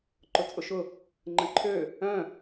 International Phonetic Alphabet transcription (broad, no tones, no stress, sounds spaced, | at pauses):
ǃ ʊ t͡sʼ ʊ ʃ ʊ | ŋ͡ǃ ə̃ ǃʰ ø | œ̃